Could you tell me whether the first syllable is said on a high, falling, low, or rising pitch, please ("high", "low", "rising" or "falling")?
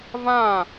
falling